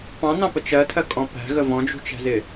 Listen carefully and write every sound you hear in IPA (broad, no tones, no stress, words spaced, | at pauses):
pɑ̃n̪ɑ̃pə t͡ʃɜtʰɜkʼɔ̃ pæ̤ɣə vɔ̃d͡ʒṳt͡ʃæ̤zɪ